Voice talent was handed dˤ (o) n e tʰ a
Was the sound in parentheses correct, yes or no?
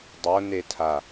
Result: yes